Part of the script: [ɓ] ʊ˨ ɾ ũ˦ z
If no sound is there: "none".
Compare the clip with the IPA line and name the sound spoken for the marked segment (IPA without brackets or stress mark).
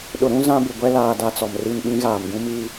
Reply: ɗ